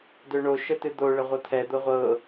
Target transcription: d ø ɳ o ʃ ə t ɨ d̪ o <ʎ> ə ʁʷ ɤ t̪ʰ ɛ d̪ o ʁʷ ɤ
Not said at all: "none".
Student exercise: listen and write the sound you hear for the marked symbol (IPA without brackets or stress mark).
ɭ